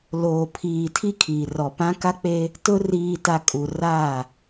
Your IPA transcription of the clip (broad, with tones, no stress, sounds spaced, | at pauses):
l oː˨ pʰ iː˨ tʰ i˦ kʰ iː˨ r ɔ˨ p ã˦ k a˦ k͡p e˦ | t ʊ˦ r iː˨ t a˨ kʼ u˨ r aː˦˨